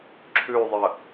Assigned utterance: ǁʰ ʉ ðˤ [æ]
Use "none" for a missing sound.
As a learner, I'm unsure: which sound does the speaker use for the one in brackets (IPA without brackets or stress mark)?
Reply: ə